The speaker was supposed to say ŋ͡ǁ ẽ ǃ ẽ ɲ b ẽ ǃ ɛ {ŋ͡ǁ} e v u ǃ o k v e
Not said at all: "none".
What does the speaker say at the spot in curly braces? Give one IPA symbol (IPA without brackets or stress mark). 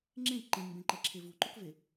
ǁʰ